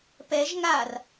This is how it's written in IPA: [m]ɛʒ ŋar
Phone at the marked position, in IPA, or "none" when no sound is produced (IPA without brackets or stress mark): p